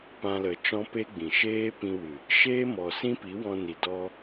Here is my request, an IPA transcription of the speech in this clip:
p ã˧ l ə˨ t͡ʃ ɔ̃˦ p e˦ ɡ͡b ĩ˨ ʃ eː˦ p ĩ˧ w ɨ˨ | ʃ eː˦ m ɔ˨ s ĩ˦ p i˨˦ w ɔ̃˧ n i˨ d ɔ˧

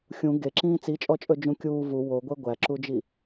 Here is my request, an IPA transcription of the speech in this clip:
xʲ ũ ɡ e ǁ ĩː t͡s i t͡ʃʼ ɔ t͡ʃʼ ɵ d͡ʒ ũ kʲ uː v u w o ɡʷ ɛ ɡʷ æ ǁ u d͡ʒ i

